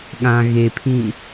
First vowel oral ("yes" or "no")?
no